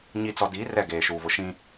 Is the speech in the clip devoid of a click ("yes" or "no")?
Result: yes